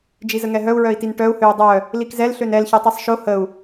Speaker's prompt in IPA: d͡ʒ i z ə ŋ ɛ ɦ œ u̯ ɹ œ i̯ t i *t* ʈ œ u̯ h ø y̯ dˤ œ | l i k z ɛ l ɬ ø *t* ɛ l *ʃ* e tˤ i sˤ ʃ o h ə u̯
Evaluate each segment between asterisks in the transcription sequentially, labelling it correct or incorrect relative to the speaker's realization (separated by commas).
incorrect, incorrect, incorrect